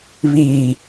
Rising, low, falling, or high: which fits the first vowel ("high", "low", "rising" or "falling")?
low